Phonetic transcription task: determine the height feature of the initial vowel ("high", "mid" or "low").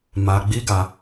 low